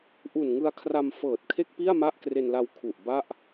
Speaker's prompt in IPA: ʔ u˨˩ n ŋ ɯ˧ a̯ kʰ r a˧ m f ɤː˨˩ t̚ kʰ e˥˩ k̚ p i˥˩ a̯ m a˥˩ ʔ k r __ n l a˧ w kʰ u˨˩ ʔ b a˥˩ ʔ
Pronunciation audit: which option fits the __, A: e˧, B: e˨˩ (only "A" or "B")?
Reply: A